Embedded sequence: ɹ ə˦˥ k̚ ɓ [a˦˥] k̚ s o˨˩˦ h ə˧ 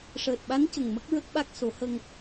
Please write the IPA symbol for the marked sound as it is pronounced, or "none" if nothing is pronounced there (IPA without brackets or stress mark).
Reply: a˦˥